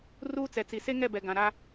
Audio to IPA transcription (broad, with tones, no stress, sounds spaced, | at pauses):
r uː˦ t͡s ɛ˨ t͡s i˨ s e˦ ŋ ɛ˦˨ b ɛ˨ ɡ ã˨ ɾ a˦